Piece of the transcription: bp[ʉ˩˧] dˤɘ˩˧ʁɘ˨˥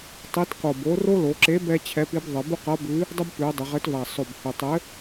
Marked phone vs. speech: correct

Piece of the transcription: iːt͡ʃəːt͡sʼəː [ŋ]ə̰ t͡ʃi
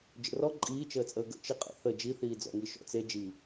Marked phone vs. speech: incorrect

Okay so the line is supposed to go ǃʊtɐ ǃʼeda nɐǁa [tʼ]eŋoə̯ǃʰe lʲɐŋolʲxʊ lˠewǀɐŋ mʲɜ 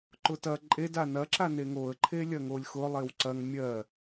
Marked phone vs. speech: incorrect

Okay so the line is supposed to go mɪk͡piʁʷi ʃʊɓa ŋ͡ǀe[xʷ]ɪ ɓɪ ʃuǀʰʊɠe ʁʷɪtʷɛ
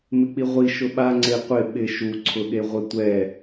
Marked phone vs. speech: incorrect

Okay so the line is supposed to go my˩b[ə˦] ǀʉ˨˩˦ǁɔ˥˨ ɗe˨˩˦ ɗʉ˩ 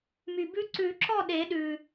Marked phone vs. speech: incorrect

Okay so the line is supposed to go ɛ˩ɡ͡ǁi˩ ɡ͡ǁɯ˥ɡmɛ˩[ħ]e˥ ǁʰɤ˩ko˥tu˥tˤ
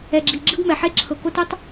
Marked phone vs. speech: correct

